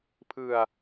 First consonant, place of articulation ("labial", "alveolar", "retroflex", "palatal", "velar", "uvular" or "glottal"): labial